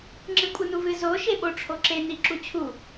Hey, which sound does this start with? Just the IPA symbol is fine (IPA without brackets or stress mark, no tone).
ŋ͡ǁ